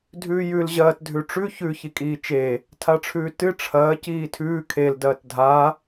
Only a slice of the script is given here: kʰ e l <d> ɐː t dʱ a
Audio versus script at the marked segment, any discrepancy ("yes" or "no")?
no